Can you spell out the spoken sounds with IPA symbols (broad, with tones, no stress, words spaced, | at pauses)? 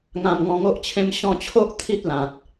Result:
ŋã˧mŋɔ̃˧ŋo˦ʔt͡ɕʰẽ˦m ɕɔ̃˧t͡ɕʰo˦ʔ t̪ʰi˦t̚lã˨t̚